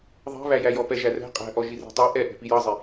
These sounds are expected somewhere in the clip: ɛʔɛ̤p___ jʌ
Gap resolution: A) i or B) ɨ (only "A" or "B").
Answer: A